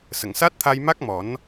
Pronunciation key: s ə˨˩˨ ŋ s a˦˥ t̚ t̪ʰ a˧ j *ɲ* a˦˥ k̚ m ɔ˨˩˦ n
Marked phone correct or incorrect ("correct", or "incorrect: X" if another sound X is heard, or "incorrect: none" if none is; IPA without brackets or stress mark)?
incorrect: m